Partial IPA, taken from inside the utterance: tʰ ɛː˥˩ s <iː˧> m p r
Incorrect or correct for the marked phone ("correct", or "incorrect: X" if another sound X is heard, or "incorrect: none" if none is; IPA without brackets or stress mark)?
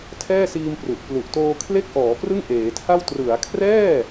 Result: correct